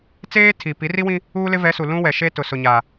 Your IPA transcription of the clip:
t͡seː˦tʰi˨ pi˨˦ri˦wĩ˦ | uː˦lɪ˦ vɛ˨˦su˨lũ˦wɛ˨ ʃe˦tʊ˨sʊ˨ɲa˨

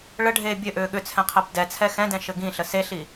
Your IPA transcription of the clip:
ɭəɖʱeː bʲɘ ʔʏːɠʏt͡sʰɛ̃qʰɛb dɛt͡sʰɛ xɛ̃dɛ̃ ʃɘɡĩ ɬəseɬi

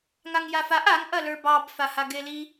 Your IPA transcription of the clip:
ŋaŋjafaʔ aŋ ʔɐlə˞bɑb fahaɡeli

